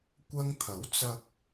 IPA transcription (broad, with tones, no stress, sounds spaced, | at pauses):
kʷ ɐ˧ ŋ t̪ʰ ɐ˨˥ w t͡s ɐ˧ k̚